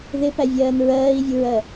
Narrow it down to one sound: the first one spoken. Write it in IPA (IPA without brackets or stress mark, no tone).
ð